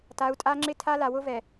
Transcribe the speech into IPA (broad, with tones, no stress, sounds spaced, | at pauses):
t a˨˦ u̯ tʼ a˦ ŋ͡ǁ ɪ˦ tʰ a˦ l a˨ w ʊ˦ v ɛ˨